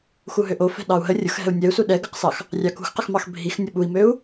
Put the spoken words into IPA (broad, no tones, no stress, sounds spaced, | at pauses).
x u ɦ ø ʔ o f ɛ̤ ɗ ɑ u̯ ɦ ə rʲ ʊ x ɦ ɛ̤ u̯ nʲ ɛ u̯ s u ɗ ɛ ɡ ə q s ɑ x | rʲ ɑ k ṳ x q ə x m ɑ x bʱ i x nʲ ʊ ɓ u i̯ m ø u̯